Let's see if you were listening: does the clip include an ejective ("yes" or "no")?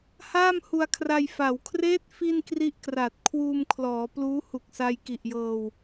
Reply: no